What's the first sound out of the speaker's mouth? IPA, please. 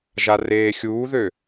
ʒ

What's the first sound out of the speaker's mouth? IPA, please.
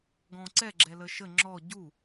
ɡ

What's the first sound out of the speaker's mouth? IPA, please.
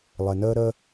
lˠ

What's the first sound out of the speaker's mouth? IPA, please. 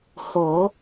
h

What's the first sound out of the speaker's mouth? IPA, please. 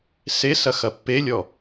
s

